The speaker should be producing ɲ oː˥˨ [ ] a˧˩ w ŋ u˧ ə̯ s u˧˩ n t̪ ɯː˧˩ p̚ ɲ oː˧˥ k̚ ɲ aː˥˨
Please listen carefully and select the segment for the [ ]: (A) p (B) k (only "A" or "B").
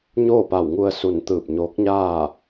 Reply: A